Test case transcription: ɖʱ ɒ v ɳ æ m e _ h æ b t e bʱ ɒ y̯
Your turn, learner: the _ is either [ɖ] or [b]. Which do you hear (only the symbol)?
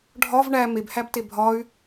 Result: b